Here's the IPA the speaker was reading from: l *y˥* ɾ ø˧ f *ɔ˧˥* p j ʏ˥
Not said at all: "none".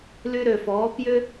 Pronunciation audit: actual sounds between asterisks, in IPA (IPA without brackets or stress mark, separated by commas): y˥, ɔː˧˥